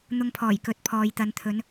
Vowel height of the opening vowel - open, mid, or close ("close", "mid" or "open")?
close